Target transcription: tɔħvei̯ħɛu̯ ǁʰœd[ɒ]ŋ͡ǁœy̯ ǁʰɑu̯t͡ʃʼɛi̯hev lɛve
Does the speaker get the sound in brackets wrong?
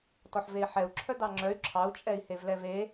yes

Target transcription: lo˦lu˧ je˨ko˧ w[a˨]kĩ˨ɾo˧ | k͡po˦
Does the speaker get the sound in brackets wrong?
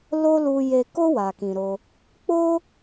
no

